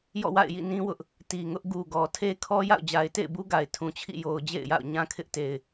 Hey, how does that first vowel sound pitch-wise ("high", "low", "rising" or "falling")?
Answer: falling